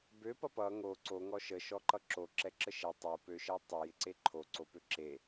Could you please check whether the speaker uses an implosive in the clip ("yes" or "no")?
no